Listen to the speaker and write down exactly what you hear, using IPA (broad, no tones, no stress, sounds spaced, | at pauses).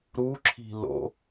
ɾ u ǁʰ i̤ l o̰